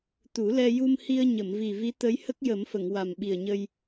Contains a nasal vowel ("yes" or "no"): no